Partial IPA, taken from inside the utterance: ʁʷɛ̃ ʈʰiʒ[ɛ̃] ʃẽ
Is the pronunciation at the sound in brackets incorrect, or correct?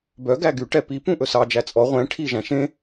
incorrect